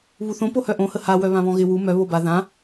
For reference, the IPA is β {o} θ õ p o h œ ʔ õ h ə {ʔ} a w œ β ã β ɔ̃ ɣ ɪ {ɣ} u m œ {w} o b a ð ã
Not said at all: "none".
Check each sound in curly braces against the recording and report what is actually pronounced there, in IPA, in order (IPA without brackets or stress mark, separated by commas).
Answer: u, h, w, β